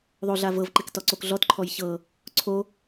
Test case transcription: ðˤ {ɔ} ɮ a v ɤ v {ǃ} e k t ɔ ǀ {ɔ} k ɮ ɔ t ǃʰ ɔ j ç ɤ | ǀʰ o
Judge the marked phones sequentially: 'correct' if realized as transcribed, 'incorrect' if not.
incorrect: o, correct, incorrect: o

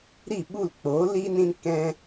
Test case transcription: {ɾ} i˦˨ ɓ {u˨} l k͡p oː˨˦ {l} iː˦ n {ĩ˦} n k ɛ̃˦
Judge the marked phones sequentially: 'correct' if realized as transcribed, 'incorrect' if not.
correct, incorrect: u˦˨, correct, correct

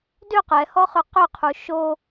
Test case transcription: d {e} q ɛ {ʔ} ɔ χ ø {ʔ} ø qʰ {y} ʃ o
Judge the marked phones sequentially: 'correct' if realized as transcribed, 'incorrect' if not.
incorrect: ø, incorrect: h, incorrect: q, incorrect: u

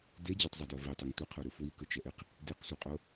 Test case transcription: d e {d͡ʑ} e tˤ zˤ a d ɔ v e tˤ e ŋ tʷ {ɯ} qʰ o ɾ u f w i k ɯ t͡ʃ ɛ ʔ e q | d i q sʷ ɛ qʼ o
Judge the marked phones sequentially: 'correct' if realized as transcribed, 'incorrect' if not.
correct, correct

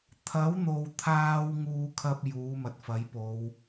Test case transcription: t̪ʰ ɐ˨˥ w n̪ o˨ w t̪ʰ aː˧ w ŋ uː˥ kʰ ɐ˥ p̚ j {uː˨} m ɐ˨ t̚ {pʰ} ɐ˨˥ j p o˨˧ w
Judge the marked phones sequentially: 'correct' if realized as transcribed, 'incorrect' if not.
incorrect: uː˨˥, incorrect: f

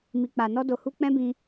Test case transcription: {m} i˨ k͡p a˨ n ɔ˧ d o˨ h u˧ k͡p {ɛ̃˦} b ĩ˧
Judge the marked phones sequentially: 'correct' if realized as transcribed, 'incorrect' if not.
correct, correct

